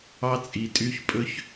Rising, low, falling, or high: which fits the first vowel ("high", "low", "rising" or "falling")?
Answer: high